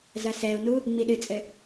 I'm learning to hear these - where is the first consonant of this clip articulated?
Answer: tongue tip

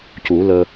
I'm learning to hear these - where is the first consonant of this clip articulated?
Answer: palate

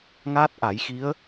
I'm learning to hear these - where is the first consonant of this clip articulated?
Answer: velum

